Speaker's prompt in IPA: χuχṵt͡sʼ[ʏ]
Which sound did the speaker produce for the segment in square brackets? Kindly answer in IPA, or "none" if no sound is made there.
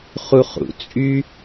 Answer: y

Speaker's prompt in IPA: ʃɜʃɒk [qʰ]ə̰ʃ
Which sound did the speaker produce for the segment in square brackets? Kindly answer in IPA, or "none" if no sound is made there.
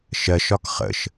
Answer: χ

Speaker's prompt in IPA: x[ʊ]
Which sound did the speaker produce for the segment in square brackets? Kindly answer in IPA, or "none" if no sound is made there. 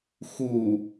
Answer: u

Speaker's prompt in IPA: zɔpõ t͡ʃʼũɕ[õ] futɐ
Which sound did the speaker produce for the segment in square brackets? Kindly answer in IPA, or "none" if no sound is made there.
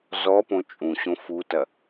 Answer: õ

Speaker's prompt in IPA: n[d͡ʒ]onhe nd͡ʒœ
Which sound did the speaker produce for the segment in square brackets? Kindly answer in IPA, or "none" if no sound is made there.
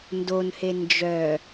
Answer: d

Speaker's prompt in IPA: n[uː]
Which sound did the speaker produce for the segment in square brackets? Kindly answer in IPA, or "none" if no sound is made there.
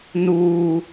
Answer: uː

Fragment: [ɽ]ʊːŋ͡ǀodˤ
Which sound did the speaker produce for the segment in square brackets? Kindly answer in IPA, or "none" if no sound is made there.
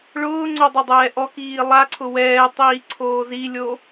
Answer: ɭ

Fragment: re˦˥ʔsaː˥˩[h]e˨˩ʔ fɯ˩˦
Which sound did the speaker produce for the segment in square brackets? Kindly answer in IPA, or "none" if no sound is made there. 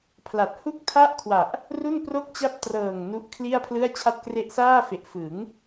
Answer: f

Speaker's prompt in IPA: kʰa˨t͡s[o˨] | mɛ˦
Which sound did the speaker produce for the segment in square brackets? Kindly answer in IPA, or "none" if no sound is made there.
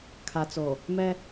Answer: o˨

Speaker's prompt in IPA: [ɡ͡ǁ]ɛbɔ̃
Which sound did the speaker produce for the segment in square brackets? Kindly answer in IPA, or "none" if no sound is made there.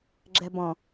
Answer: ɡ͡ǁ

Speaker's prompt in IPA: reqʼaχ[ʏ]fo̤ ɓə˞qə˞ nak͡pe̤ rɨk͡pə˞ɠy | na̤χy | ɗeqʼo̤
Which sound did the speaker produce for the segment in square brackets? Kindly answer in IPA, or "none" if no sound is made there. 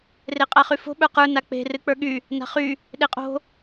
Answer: y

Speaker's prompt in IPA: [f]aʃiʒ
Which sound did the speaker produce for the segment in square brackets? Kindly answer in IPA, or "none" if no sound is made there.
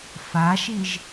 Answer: f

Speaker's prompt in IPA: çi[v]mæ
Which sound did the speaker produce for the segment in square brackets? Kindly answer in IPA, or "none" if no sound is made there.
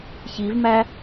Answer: v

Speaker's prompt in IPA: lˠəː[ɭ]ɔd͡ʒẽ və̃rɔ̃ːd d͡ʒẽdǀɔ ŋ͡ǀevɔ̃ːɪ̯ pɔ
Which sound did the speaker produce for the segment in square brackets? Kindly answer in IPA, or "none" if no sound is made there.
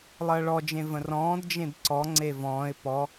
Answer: ɭ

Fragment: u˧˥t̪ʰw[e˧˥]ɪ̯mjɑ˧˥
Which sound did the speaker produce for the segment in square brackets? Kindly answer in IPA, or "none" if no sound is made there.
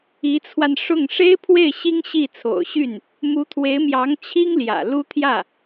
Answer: e˧˥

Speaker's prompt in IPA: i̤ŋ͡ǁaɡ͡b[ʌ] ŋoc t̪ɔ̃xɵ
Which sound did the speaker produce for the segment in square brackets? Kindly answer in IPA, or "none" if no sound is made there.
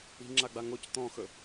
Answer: a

